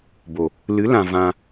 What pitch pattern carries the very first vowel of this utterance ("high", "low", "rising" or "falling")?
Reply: low